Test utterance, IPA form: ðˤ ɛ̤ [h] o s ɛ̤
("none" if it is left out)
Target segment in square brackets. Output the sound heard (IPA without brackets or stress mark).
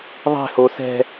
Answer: h